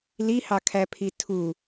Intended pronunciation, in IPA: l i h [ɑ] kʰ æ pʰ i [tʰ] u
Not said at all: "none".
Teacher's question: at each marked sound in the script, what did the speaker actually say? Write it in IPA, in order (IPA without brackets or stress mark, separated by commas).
ɑ, tʰ